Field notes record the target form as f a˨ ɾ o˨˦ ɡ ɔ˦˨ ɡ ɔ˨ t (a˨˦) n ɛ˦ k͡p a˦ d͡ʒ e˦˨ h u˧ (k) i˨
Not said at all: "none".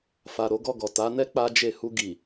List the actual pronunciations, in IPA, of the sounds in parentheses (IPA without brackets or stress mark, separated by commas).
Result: a˨˦, ɡ